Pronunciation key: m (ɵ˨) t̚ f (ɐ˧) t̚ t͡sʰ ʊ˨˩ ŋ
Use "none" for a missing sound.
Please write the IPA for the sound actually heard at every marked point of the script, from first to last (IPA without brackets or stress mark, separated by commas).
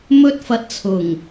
ɵ˥, ɐ˧